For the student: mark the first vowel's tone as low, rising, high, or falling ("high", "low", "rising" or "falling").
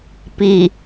low